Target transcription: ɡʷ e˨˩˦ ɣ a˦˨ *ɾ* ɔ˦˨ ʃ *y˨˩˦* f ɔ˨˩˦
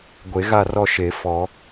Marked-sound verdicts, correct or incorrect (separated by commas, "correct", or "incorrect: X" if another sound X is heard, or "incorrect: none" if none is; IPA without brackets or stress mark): incorrect: r, incorrect: e˨˩˦